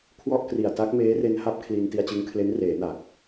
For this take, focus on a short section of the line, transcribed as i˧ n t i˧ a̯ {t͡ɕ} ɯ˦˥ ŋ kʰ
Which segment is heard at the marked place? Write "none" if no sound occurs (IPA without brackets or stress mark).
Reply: t͡ɕ